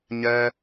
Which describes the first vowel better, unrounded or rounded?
unrounded